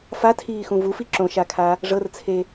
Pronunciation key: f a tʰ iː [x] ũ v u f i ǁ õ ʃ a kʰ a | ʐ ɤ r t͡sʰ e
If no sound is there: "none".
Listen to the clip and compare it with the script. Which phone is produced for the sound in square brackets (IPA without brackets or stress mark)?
x